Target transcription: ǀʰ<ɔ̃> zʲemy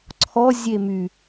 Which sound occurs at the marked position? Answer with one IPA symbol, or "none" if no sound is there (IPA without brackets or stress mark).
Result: ɔ